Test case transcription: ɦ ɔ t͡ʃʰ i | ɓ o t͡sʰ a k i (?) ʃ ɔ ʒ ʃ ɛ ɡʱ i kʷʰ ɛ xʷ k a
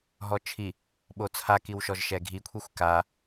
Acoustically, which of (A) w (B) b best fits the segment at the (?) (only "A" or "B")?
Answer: A